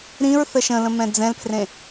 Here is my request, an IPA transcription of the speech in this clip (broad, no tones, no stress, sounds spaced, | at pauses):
ɾ ĩ ɹ θ ə ʃ ə̃ l ə̃ m ɛ̃ d͡z ɛ̃ l pʰ r ẽ